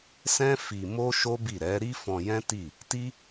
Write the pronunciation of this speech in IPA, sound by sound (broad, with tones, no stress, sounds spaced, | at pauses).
s ɛ̃˦ f i˧ m o˦ ʃ o˦ b i˦˨ ɾ ɛ˨˦ ɾ i˦ f ɔ̃˧ j ɛ̃˦ t i˦˨ | t i˦